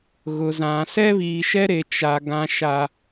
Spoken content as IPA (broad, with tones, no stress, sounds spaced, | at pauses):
ɣ ʊ˨ z ã˨ s ɛ˦ β iː˨ ʃ ɛ˦ ɾ e˨ t͡ʃ a˨ ɡ ã˦ ʃ a˦